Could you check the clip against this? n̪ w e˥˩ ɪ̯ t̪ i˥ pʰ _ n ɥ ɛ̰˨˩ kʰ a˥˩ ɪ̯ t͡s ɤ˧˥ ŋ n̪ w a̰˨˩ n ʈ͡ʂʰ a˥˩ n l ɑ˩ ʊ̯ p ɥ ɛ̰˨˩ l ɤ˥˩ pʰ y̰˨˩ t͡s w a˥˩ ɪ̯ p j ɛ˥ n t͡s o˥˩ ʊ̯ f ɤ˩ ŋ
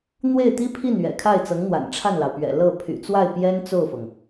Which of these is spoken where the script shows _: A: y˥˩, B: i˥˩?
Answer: B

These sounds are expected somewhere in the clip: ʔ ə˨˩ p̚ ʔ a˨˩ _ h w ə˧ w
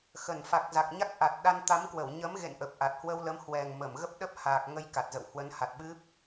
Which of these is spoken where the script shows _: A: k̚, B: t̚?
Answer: B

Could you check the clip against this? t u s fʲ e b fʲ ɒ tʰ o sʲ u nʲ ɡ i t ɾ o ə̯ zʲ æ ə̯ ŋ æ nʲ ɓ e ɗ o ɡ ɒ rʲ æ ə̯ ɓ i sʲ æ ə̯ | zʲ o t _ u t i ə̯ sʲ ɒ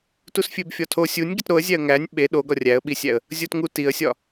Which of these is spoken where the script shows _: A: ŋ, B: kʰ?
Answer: A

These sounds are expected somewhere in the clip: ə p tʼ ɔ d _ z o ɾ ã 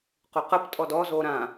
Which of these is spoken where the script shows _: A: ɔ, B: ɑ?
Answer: A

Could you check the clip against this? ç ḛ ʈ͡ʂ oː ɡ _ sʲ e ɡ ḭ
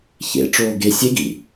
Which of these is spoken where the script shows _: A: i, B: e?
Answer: B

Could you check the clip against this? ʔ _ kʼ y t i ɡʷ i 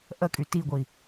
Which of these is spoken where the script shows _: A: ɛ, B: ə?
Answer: B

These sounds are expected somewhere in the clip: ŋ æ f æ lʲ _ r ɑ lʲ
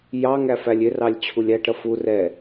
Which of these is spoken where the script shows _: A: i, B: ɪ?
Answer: B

